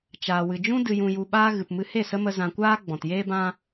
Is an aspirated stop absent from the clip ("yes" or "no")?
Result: yes